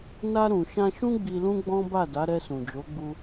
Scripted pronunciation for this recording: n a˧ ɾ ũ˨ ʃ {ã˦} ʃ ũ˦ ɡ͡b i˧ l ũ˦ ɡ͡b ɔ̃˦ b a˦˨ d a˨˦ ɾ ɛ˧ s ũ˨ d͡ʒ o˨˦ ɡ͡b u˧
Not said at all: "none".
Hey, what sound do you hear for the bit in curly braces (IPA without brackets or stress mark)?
ã˧